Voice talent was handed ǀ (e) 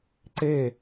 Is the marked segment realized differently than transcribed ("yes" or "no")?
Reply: no